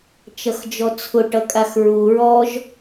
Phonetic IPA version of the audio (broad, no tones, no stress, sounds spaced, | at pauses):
t͡ʃ ʌ x d͡ʒ ɔ t͡sʰ ʊ ʈ ʌ kʼ a x ɹ u ɹ ɔ ʒ